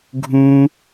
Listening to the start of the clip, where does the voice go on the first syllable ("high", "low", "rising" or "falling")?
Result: high